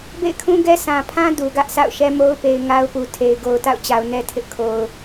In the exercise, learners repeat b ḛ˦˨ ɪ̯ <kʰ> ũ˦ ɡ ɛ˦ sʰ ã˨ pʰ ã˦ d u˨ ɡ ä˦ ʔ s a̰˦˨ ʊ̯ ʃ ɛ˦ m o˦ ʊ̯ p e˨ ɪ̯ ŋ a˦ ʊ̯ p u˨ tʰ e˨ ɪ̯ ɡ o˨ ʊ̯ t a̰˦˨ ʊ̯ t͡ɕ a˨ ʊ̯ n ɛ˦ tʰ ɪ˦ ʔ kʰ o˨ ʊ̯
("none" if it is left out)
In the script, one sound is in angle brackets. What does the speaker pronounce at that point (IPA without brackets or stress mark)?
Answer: kʰ